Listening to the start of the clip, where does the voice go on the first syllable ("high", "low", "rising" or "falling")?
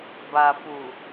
low